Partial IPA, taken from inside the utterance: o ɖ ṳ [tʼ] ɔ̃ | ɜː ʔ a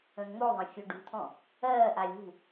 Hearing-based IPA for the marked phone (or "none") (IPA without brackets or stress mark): t̪ʰ